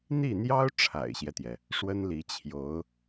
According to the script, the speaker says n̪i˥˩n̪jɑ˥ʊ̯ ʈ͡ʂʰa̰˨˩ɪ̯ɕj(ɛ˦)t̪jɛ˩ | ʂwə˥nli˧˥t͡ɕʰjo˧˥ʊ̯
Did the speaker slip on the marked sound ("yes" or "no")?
no